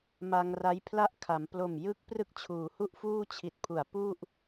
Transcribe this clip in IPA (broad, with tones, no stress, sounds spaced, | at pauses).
m a˧ ŋ r a˦˥ j pʰ l a˥˩ ʔ kʰ a˩˦ m p l o˨˩ m j ɯ˦˥ k̚ p r ɯ˥˩ k̚ t͡ɕʰ uː˩˦ h u˥˩ ʔ f uː˥˩ t͡ɕʰ i˨˩ t̚ pʰ u˩˦ a̯ p u˥˩ ʔ